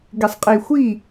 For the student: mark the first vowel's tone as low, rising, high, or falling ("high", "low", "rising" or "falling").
low